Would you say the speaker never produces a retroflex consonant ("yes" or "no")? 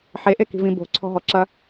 yes